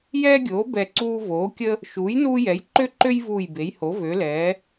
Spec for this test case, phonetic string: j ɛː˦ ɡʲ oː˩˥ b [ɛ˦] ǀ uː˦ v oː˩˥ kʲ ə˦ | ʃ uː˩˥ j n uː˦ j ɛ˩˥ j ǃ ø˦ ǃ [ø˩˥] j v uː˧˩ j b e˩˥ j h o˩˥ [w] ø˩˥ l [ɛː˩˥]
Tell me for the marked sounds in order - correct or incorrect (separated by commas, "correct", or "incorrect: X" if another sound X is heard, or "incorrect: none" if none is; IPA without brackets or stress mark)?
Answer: incorrect: ɛ˧˩, incorrect: ø˦, incorrect: v, correct